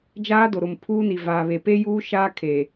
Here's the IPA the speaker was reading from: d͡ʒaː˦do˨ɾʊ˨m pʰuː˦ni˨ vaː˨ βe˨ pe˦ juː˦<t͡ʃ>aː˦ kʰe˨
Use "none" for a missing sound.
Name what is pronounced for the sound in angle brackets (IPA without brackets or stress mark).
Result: ʃ